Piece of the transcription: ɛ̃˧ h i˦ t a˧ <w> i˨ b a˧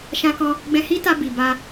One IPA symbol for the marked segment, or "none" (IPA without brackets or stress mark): b